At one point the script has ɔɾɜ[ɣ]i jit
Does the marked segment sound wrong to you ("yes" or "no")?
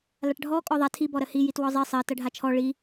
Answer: yes